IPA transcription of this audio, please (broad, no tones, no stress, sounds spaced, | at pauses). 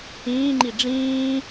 ĩː ŋ͡ǃ i ɖ͡ʐ ĩː